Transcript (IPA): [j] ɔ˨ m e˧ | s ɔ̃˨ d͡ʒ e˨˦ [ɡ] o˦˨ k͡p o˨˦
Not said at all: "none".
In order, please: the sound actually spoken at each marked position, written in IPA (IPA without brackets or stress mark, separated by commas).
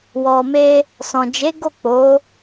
w, ɡ